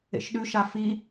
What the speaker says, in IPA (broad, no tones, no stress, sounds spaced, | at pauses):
ḛ ʃ ɗ ʉ ʃ a f i